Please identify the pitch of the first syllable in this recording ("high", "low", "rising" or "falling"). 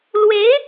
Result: rising